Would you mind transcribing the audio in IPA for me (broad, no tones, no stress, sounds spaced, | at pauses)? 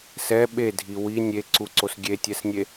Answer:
s ɛ ɓ e dʱ i w i nʲ e ǀ u ǀ o s ɡʲ e tʲ ɛ s nʲ e